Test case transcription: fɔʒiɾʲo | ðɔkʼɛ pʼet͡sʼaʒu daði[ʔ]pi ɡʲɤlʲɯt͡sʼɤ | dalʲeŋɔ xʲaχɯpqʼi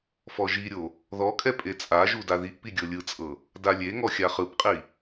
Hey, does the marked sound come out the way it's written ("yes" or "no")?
yes